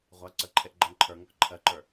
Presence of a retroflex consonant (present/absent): absent